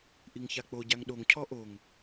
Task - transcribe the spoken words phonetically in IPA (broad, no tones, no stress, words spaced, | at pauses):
ʔiŋçak͡po ɟaŋɗoŋ cʰɔʔoŋ